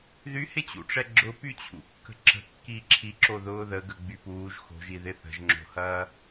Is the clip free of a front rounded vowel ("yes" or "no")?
no